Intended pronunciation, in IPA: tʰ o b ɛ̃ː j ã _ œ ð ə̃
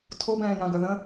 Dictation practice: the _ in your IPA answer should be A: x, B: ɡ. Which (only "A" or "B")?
B